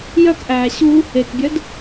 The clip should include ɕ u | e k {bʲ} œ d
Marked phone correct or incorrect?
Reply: correct